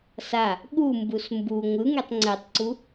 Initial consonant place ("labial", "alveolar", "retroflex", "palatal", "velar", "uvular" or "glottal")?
alveolar